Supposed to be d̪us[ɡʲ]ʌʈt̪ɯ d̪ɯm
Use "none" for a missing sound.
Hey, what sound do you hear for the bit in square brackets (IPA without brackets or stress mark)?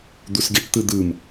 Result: ɡʲ